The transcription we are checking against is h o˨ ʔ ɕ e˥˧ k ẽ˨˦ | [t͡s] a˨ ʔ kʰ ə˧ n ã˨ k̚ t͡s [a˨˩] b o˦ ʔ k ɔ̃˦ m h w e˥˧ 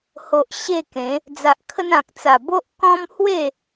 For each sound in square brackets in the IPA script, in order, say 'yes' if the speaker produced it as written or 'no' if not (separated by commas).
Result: no, yes